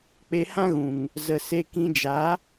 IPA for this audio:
k͡p e˧ h ã˦ ɣ ũ˨ ŋ | z ə˨ s e˧ k ĩ˧ d͡ʒ a˨˦

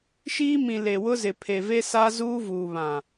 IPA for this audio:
ʃ iː˦ m ĩ˨ l e˨ w ʊ˦ z ɪ˨ pʰ e˨ v e˦ s a˦ z uː˦ v uː˨ β ã˨

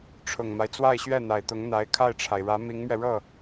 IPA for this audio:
ʈ͡ʂʰ ʊ˨˩ ŋ m a˦ ɪ̯ t͡s w a˥˧ ɪ̯ ɕ ɥ ɛ˥˩ n̪ a˨˩ ɪ̯ t̪ ʊ˧˥ ŋ n̪ a˧˥ ɪ̯ kʰ a˥˩ ɪ̯ ʈ͡ʂʰ a˩ ɪ̯ ɻ ä˧˥ m i˧˥ ŋ m ɥ ɛ˧ ɻ ɤ˥˩

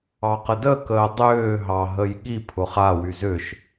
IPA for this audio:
ɑ q ə d ə k əː dˤ ʏː ɦ ɑ ɦ ə j ɠ i pʰ ʊ χ a w y z ʏ ʃ

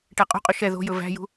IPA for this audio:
ʈ æ qʼ o̤ qʼ ɵ ʃ ɛ ð o̤ j ɵ v æ̤ j ṳ

